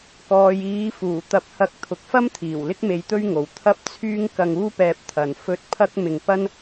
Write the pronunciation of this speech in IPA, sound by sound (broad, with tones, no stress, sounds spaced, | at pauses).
k ɔː˨ j iː˨˧ f uː˨˩ t̪ ɐ˨˥ p̚ h ɐ˨˥ k̚ t̪ʰ ʊ˨ k̚ f ɐ˥ m t̪ʰ iː˨˩ w l ɪ˥ k̚ m e˧ j t̪ ɵ˥ ɥ ŋ o˨ w t̪ʰ ɐ˥ p̚ t͡sʰ yː˥ ŋ k ɐ˧ ŋ uː˥ p ɛː˧ p̚ t̪ʰ ɐ˧ n f ɵ˥ t̚ pʰ ɐ˥ k̚ m ɪ˧ ŋ p ɐ˥ n